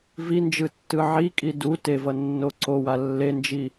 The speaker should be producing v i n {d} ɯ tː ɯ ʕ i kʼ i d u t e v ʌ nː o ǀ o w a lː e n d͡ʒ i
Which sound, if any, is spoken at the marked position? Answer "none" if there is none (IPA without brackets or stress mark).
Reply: d͡ʒ